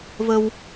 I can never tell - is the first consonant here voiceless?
no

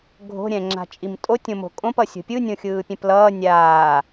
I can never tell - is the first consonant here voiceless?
no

